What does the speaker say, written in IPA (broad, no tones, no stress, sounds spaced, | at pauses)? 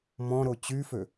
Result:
m ɔ̃ ɾ o t͡ɕ y f ø